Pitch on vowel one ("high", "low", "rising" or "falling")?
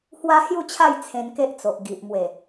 high